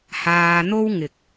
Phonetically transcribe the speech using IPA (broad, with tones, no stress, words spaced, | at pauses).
haː˧n̪o˥wŋɪ˨k̚